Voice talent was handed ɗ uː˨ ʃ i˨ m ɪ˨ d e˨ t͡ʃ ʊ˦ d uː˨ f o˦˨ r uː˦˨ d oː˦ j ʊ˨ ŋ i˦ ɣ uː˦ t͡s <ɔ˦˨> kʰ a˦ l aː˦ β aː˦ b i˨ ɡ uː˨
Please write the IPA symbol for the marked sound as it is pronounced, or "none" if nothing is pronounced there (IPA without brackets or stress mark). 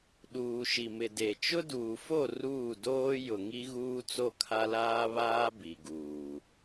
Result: o˦˨